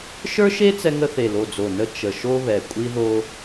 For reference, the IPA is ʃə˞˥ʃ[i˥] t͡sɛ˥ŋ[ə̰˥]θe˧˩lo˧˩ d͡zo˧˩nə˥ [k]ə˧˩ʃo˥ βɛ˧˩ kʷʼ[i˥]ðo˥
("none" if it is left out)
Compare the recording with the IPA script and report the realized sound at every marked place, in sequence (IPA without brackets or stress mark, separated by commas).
e˥, ə˥, t͡ʃ, i˥